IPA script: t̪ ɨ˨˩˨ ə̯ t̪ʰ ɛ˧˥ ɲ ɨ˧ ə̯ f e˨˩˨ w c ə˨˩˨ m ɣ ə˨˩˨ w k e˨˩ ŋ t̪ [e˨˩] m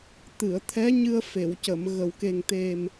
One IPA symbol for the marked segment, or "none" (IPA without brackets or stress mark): e˨˩